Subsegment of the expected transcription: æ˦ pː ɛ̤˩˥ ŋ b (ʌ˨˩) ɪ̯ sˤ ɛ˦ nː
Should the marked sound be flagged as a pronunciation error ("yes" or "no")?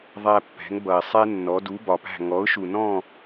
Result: no